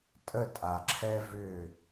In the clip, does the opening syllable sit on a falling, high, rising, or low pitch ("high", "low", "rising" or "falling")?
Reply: falling